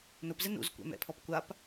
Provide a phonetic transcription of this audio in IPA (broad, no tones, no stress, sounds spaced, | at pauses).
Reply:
n ʊ p z e n ṵ z kʷ ɛ̰ m ɛ̰ pʰ ɔ p kʷ a p